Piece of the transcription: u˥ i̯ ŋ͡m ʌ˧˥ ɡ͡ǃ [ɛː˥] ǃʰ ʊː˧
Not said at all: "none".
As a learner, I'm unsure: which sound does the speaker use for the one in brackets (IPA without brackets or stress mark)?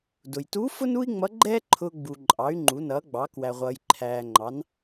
ɛː˥